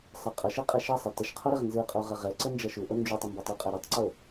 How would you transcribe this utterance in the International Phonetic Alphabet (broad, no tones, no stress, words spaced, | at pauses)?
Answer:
sˤə qʼʌʃɯqʼɛ ʃʌsˤɛ təʃqʰoɾɛʁ nzɯqʼoʁʌ ʁɛǀənd͡ʒʌ ʃuʔo nd͡ʒutˤəmbʌtˤ uqʼɛ ɾutˤǀo